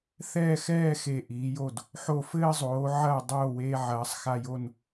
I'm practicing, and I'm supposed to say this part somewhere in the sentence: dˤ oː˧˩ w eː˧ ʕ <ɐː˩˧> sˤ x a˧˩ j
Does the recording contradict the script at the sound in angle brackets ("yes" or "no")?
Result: no